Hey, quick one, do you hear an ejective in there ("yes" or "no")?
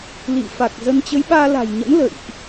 no